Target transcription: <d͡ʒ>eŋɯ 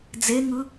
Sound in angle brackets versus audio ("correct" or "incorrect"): incorrect